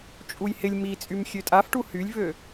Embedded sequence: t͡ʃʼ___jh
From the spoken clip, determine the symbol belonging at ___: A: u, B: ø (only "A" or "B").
A